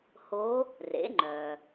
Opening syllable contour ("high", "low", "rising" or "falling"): rising